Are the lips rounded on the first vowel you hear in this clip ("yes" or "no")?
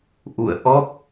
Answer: yes